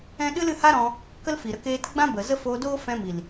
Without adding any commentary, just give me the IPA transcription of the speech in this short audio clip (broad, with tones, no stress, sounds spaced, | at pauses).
ɛ̃˦ ɗ ɨ˦ l ɨ˧ h a˦ ɾ ɔ̃˧ | k ə˦ l f i˨ ɾ ə˧ k eː˧ t ɡ͡b ã˦ b ə˨ z ə˦ f oː˧ d oː˦ f ɛ̃˧ m i˨ l